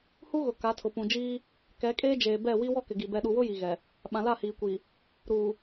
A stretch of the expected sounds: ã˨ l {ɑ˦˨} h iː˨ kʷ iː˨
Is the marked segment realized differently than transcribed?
yes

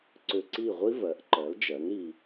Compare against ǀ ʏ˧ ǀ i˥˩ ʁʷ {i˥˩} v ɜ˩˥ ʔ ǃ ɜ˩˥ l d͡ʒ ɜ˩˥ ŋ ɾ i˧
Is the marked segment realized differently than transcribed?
yes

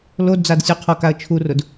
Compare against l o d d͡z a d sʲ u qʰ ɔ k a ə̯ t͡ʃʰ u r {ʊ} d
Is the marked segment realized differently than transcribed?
no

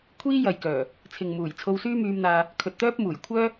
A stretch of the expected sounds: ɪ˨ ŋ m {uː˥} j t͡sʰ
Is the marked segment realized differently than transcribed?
yes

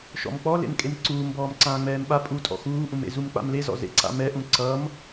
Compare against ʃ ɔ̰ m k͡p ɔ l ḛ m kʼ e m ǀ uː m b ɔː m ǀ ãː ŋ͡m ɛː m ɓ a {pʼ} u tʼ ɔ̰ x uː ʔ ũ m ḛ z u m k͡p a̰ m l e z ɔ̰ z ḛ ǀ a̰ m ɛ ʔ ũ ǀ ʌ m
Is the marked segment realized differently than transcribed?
no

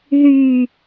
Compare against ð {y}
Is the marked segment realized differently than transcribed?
no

